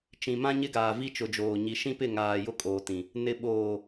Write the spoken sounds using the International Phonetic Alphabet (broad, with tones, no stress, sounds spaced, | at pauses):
t͡ʃ ĩ˨ m ã˦ ɲ ɪ˦ ɡ aː˨ v i˦ t͡ʃ ʊ˨ d͡ʒ oː˨ ɲ i˨ ʃ ĩ˦ p ɪ˦˨ ŋ aː˨ j ʊ˦ kʼ oː˨ t ĩ˨ | n ɪ˨ ɓ oː˨